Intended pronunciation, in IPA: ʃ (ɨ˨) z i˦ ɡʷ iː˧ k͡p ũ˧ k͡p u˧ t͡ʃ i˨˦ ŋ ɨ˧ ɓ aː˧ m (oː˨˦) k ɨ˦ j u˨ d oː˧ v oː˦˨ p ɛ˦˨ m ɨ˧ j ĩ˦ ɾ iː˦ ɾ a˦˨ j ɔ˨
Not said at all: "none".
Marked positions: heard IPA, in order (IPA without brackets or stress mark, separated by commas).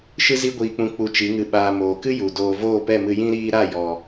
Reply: ɨ˦, oː˨